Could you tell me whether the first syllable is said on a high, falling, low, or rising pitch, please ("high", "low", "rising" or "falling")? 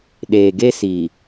low